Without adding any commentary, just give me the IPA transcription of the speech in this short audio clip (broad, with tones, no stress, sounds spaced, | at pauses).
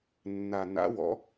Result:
nː a˨˩ n a̰˨˥ w ɔ̰˨˥